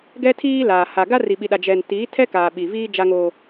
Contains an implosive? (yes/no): yes